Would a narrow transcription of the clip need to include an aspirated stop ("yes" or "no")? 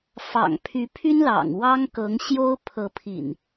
yes